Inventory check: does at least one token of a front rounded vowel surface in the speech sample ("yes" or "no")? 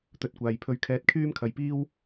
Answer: yes